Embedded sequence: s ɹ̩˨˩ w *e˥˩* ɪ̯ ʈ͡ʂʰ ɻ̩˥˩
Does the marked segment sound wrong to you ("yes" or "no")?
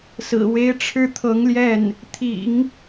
yes